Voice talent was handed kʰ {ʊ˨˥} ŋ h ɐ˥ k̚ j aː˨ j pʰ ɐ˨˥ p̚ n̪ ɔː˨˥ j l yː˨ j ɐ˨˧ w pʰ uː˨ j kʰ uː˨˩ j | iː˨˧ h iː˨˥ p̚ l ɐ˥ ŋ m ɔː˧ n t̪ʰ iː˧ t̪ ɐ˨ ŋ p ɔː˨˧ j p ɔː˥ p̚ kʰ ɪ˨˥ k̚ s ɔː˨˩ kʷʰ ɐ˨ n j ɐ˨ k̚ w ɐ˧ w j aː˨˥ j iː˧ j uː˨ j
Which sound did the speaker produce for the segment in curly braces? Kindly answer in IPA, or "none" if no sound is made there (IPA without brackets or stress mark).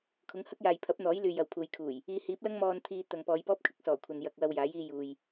ʊ˨˥